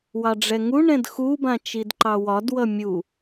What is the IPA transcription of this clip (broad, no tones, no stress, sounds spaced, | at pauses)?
w ɑ ɖ͡ʐ ɛ ŋ u ɳ ɛ̃ d x u b ã t͡ʃ i d ǃ ɑ w ɒ d w ʌ mʲ u